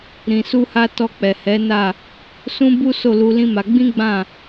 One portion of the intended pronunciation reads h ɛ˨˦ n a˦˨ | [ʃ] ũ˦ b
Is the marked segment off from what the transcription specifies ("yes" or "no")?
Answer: yes